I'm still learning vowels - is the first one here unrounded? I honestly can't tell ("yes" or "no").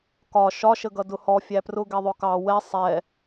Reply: no